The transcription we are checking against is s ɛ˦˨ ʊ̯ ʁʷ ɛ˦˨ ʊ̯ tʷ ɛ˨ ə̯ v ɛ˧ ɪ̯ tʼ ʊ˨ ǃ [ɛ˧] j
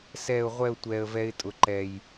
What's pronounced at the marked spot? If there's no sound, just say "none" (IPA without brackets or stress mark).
ɛ˨